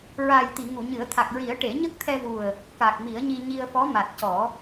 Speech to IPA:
ɹ a˨˩ j t̪ i˨˩˨ ŋ u˨˩˨ ɲ ɨ˨˩˦ ə̯ t̪ʰ a˨˩ k̚ ɹ i˨˩˦ ə̯ ʈ e˨˩˦ ɲ ə˦˥ k̚ t̪ʰ ɛ˧ v u˨˩ ə̯ | k a˨˩ k̚ m i˨˩˦ ə̯ ɲ i˧ ɲ i˧ ə̯ f ɔ˧˥ m a˨˩ t̚ c ɔ˨˩˦

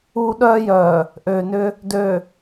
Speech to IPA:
uː˦ ɗ œː˦ j œː˨ | ʔ øː˨ n ʏ˦ | d ø˨

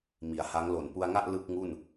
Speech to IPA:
m i˩˦ a̯ h a˦˥ ŋ l o˨˩ n p u˧ a̯ ŋ a˥˩ ʔ l ɯ˥˩ k̚ ŋ u˥˩ n

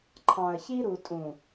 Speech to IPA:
ǃʰ ɑ̃˨ ə̯ ç i˦ ɾ u˨ tʼ ũ˨

